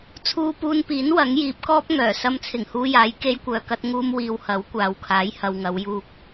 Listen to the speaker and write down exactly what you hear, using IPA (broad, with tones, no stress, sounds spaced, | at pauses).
t͡sʰ uː˧ p uː˧ n p iː˨˥ n w ɐ˨˥ ŋ j iː˨˥ p̚ k ɔː˥ p̚ ŋ œː˨˩ s ɐ˧ m t͡sʰ ɪ˨˩ ŋ h uː˧ j aː˨˥ j k e˧ j kʷ œː˨ k ɐ˧ t̚ ŋ uː˧ m w iː˨ w h ɐ˨˥ w kʷ aː˨ w kʰ aː˨˥ j h ɐ˨ w ŋ ɐ˨˧ w j uː˧ k̚